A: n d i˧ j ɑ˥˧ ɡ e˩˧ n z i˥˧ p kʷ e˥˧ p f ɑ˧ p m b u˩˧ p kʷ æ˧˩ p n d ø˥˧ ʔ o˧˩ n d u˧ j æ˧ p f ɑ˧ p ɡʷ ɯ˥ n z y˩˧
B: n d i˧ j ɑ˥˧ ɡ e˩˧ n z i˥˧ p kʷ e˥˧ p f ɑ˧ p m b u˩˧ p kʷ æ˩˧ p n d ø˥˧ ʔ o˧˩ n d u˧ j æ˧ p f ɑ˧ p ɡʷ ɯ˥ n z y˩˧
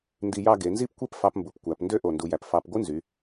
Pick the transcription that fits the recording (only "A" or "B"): B